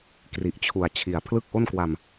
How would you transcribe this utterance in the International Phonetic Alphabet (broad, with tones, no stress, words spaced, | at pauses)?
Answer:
kri˨˩ʔt͡ɕʰu˨˩a̯ t͡ɕʰi˨˩a̯ pʰlɯ˥˩k̚ʔo˥˩nkwa˧m